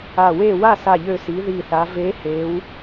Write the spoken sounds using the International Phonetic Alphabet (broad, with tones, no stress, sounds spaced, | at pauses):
a˧˩ w e˥˨ w a˥˨ s a˧˩ ʎ ø˧˩ s i˩˧ ð i˧˩ θ a˩˧ v e˨˥ h e˩˧ w